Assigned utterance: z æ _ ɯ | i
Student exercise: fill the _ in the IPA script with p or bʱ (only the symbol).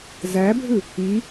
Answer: bʱ